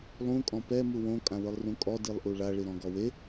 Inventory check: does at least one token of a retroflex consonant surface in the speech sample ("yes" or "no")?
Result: yes